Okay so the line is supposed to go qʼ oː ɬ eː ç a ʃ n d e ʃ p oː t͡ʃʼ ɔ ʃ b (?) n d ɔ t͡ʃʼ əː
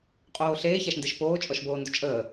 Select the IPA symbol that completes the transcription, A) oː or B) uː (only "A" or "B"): A